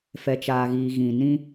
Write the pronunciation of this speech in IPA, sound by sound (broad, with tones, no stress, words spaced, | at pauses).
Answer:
fɛ˨t͡ʃaː˨ɣiː˨ ɣĩ˨ nĩ˦